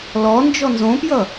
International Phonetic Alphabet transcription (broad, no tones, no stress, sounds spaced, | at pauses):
l ɔ n d͡ʒ ɔ n z õ p j ʌ